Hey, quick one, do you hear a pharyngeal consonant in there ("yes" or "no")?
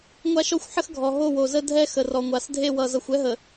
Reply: yes